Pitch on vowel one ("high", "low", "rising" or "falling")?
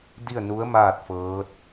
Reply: falling